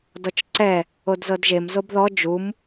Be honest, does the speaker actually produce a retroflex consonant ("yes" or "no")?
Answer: no